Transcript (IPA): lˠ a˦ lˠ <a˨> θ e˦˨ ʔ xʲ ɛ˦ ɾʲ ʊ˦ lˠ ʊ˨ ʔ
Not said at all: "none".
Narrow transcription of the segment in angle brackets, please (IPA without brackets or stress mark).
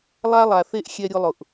a˨